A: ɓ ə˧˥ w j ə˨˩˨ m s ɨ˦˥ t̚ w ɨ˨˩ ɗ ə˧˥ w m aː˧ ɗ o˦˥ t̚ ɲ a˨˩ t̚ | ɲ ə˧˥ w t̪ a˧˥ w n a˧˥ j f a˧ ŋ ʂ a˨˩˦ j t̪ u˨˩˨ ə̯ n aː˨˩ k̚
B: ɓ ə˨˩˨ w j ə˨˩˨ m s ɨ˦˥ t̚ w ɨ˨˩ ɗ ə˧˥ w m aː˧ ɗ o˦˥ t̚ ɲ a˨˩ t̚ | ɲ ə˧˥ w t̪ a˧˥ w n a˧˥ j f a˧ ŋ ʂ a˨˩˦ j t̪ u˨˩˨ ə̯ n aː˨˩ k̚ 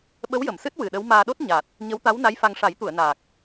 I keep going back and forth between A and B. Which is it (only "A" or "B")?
A